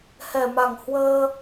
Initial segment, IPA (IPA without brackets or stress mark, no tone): h